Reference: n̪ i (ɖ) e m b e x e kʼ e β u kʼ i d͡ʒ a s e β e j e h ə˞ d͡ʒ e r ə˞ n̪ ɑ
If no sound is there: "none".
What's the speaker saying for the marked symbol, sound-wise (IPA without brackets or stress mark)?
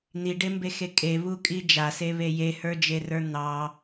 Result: ɖ